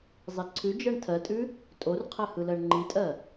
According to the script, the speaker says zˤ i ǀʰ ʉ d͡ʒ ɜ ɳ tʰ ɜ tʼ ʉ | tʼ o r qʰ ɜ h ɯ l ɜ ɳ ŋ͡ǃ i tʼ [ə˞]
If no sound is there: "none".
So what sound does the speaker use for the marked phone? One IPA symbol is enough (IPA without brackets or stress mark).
ɜ